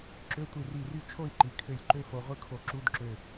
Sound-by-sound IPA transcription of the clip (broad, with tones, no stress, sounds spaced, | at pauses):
ǁ ø˧˥˧ tʷ i˧˩ r i˧˩ r y˥˨ t͡ʃʰ o˥˨ i̯ ǃ i˩ kʰ ø˧˩ lʲ ǃ ø˥ f o˧ ʁʷ ɯ˥ kʰ o˧˩ ǁ u˧˥˧ d ǁ ø˧˩